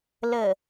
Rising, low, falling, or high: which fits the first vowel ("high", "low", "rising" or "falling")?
low